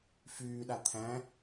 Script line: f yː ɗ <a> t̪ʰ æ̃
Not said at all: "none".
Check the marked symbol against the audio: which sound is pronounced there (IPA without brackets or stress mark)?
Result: a